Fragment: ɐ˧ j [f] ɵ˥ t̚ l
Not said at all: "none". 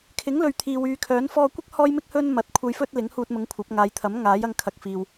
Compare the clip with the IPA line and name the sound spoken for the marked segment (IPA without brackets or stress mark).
f